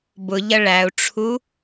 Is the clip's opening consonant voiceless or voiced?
voiced